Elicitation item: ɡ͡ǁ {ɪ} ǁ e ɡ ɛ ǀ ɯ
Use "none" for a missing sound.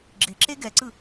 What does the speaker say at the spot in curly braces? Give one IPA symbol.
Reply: ɪ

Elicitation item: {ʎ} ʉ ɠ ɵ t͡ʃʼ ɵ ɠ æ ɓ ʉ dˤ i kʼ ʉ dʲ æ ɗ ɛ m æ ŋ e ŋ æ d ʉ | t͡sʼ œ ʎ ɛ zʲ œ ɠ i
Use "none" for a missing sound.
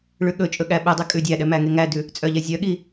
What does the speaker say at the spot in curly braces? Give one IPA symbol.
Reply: ɭ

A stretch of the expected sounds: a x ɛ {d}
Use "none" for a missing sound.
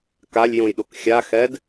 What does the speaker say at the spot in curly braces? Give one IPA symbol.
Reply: d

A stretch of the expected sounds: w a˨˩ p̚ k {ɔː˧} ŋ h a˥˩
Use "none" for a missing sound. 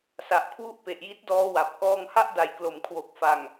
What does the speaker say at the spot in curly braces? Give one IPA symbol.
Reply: ɔː˧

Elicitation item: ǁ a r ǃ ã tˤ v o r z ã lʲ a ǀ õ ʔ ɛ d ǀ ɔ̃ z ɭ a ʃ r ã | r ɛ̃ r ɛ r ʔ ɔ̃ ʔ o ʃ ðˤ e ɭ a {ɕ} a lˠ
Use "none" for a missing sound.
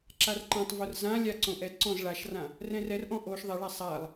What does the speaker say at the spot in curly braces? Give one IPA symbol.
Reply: sˤ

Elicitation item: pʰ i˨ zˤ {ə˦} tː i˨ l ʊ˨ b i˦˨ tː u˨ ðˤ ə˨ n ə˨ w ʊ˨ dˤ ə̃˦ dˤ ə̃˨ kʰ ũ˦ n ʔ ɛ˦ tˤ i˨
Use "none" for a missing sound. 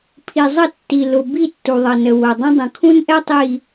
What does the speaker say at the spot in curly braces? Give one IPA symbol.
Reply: ə˦˨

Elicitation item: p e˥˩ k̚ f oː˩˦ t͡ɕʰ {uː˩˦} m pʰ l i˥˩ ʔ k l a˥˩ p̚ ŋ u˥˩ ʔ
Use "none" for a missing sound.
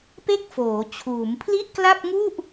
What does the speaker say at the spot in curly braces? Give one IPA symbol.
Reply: uː˩˦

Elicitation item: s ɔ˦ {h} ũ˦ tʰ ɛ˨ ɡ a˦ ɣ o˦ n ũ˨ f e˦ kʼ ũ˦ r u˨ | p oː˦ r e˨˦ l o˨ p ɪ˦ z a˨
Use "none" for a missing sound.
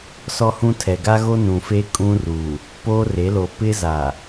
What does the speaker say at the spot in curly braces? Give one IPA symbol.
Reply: h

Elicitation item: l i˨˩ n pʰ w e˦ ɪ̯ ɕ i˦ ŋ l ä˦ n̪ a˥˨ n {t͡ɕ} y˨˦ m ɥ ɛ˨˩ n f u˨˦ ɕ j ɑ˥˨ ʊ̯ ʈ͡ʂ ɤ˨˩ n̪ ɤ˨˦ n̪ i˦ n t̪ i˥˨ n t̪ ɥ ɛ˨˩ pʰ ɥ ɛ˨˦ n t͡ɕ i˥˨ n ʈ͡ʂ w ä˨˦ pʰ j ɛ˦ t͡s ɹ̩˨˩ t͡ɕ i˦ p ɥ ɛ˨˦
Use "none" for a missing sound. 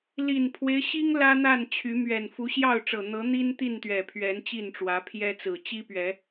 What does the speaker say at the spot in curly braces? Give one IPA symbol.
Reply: t͡ɕʰ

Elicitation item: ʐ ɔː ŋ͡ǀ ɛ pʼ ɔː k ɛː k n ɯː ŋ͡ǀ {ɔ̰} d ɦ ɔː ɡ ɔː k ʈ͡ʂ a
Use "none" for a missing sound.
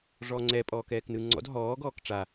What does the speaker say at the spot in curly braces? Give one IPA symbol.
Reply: ɔ̰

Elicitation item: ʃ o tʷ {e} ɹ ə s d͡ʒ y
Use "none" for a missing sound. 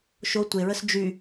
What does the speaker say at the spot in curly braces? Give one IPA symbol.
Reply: e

